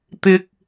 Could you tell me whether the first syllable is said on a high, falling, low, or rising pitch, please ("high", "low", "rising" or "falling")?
high